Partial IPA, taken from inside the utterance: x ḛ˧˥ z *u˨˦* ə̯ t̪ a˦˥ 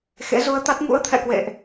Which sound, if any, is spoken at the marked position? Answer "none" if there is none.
u˧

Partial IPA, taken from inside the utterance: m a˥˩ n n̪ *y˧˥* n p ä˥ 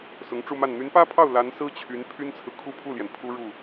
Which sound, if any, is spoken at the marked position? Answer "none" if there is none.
y˧˥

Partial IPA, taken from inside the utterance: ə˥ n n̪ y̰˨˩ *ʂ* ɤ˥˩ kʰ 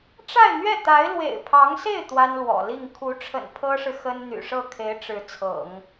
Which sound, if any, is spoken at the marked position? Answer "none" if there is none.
ʂ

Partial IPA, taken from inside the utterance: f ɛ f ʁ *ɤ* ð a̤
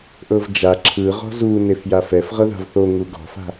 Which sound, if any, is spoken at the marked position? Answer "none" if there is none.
ɤ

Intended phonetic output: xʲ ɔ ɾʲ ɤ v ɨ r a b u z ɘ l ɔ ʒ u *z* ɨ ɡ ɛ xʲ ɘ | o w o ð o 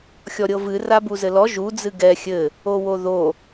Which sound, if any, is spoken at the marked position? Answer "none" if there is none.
d͡z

